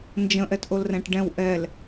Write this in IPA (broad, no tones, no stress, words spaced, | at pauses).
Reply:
nd͡ʒə̃ʔɛtʔolrɛ̃ʈ ɖɛ̃w ʔɛl